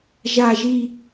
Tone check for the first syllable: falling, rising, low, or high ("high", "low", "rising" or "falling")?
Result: low